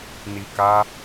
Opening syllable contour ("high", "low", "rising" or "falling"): low